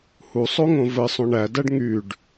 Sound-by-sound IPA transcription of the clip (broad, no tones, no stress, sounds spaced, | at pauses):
h u sˤ o ŋ õ v ɘ sˤ õ ɳ æ d æ ɖ ŋ y ɖ